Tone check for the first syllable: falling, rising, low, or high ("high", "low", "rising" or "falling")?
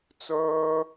high